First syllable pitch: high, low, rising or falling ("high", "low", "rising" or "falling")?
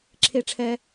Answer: low